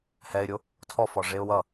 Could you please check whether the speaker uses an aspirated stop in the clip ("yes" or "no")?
yes